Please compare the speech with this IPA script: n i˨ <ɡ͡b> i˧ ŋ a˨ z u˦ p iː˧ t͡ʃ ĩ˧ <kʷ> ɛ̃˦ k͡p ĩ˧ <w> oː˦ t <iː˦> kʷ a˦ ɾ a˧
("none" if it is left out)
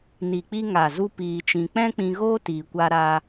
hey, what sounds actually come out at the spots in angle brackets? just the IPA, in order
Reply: k͡p, k͡p, ɣ, iː˧

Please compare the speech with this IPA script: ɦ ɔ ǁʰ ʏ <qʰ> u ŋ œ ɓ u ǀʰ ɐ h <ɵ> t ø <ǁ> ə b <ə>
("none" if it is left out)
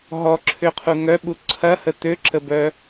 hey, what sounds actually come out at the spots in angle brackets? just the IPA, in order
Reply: qʰ, ə, ǁ, œ

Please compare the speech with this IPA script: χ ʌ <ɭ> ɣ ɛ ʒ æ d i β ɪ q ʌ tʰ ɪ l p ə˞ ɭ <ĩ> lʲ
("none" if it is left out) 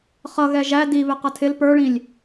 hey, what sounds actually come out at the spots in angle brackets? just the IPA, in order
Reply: none, ĩ

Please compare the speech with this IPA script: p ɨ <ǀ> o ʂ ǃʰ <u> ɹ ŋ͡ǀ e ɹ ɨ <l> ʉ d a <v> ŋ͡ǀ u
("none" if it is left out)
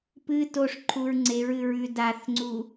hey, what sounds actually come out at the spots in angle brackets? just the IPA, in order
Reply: t, u, ɹ, θ

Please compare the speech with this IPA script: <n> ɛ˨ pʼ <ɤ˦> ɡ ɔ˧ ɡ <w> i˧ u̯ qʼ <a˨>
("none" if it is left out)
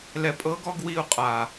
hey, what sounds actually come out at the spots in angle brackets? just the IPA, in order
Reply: l, ɤ˨˦, w, a˨

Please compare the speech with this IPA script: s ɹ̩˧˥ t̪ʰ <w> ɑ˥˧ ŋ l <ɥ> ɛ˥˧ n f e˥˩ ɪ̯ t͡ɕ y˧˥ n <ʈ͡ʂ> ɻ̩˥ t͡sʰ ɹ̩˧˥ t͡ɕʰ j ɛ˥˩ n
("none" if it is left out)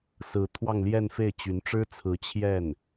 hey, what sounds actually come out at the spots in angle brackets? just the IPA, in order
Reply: w, j, ʈ͡ʂ

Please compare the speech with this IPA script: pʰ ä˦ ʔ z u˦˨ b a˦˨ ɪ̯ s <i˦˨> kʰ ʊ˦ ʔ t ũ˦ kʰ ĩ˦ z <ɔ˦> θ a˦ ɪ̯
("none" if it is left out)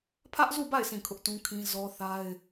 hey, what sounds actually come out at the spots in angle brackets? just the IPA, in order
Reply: ĩ˦˨, ɔ˦

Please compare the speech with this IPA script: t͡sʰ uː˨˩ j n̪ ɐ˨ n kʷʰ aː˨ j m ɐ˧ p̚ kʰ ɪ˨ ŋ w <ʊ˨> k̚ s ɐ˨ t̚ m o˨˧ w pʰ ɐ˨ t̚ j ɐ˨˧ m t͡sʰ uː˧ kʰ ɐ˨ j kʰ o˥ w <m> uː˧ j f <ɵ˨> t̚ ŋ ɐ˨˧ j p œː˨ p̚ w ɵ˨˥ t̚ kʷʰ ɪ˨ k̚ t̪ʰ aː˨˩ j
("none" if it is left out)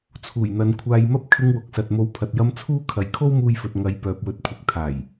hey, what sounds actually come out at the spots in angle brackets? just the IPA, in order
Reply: ʊ˨, m, ɵ˨

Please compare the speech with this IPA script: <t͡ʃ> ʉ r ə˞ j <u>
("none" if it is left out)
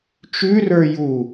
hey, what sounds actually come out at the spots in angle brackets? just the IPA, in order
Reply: t͡ʃ, u

